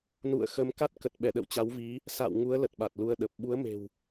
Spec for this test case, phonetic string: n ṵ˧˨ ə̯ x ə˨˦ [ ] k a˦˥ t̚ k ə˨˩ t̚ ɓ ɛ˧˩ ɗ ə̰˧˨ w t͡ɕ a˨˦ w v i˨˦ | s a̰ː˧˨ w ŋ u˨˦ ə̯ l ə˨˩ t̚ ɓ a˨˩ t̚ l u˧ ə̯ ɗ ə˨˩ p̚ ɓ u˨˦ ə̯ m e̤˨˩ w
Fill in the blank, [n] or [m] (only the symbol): m